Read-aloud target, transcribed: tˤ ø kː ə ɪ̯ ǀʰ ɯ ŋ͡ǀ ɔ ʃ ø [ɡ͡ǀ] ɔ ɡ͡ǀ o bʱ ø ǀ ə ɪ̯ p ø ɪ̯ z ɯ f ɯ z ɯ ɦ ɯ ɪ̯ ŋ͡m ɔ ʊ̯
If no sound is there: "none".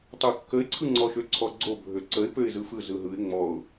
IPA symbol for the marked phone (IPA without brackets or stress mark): ǀʰ